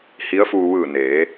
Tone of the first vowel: rising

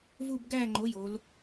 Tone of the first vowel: falling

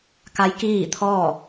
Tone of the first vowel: rising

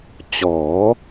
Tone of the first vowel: rising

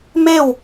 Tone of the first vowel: falling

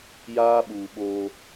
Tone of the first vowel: high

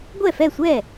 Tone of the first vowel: falling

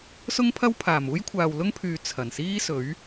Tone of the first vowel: high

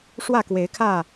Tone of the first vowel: falling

